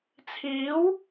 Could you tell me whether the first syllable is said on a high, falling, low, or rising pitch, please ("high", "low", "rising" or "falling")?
rising